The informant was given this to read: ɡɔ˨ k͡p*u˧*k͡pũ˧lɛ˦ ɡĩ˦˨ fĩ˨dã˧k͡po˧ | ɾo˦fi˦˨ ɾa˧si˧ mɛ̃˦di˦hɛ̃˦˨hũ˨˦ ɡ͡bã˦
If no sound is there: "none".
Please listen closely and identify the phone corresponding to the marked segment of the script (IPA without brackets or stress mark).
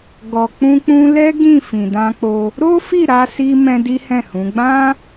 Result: ũ˧